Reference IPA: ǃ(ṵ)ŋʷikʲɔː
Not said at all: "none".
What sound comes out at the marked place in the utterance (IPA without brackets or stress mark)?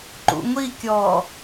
ṵ